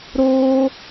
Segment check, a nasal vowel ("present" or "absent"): absent